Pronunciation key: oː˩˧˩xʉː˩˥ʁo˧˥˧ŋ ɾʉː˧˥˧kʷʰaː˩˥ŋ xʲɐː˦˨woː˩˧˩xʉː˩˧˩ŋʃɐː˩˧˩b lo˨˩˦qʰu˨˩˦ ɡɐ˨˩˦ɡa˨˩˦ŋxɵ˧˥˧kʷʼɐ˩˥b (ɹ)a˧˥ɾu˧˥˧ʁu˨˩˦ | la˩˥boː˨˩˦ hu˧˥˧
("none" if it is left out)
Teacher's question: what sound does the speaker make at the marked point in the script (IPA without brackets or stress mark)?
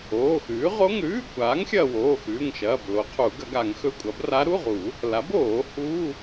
r